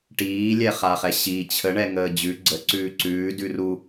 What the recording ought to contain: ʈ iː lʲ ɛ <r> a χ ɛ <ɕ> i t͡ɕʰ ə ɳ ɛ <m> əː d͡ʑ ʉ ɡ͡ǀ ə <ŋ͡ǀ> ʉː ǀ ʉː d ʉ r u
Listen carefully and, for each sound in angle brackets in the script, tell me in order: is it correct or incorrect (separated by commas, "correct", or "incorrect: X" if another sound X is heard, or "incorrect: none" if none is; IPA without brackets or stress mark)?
incorrect: χ, correct, incorrect: ŋ, incorrect: ǀ